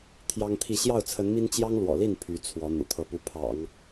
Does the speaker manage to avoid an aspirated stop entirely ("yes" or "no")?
no